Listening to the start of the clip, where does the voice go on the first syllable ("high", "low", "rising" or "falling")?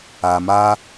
low